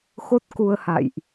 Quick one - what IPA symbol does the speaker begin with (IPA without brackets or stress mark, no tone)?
x